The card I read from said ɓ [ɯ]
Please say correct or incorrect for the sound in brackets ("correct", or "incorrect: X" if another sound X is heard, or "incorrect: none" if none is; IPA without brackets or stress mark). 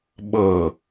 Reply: incorrect: ɤ